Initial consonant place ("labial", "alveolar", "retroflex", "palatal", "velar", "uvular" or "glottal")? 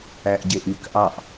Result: glottal